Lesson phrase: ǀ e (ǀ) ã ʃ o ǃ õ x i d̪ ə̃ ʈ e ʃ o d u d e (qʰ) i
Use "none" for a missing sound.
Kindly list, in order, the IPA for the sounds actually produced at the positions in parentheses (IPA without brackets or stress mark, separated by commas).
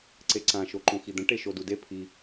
ǀ, pʰ